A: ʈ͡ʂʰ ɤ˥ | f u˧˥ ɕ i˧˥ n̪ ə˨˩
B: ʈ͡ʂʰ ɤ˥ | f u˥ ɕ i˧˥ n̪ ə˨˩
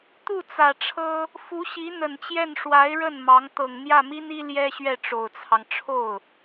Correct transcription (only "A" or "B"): A